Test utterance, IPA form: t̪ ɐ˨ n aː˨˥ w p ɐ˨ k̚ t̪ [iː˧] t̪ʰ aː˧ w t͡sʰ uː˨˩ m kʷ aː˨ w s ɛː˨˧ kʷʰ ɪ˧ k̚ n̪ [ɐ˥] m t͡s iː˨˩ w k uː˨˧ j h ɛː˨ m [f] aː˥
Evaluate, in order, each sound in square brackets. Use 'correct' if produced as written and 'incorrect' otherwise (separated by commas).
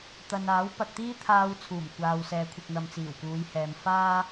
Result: incorrect, incorrect, correct